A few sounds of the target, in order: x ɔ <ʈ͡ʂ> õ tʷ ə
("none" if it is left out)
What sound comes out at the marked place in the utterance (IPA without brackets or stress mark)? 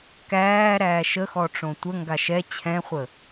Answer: ʈ͡ʂ